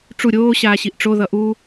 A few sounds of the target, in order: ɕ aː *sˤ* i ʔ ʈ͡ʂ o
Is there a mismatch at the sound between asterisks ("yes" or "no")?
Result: yes